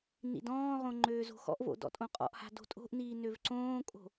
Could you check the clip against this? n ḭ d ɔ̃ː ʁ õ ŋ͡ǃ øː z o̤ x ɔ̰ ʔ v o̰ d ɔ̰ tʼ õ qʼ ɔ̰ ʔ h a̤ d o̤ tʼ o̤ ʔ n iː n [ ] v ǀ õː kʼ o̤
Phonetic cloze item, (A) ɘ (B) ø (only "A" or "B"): B